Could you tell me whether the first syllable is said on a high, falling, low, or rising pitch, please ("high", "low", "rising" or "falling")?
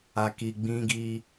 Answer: low